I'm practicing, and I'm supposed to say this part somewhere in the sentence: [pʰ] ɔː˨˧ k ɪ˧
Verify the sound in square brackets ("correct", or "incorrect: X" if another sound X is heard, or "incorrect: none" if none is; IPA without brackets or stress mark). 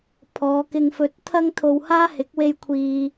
correct